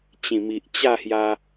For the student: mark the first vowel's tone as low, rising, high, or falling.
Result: low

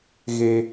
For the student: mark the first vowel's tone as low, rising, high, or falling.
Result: high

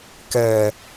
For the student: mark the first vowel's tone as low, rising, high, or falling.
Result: low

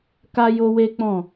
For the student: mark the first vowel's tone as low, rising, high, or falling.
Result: high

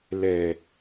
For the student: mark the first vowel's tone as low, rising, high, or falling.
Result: low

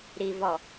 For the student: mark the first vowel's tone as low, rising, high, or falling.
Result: low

